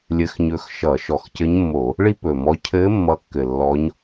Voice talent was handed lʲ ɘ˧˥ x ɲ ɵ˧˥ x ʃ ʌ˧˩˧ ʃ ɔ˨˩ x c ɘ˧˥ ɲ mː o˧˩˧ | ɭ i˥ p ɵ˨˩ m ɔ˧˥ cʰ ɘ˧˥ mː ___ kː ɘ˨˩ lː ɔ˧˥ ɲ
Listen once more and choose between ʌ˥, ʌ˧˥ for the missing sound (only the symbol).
ʌ˧˥